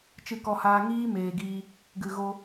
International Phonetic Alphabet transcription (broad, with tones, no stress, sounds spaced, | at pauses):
t͡ʃ ɨ˧ k ɔ˧ h aː˧ ŋ iː˦ m eː˨ ɡ iː˧ | ɡ ɨ˨ ɣ o˧